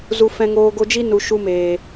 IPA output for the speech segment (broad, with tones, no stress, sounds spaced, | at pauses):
z u˧ f ɛ̃˧ ŋ oː˧ ɡ o˧ d͡ʒ i˦ n u˨ ʃ u˧ m eː˨